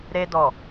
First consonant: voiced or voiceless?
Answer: voiced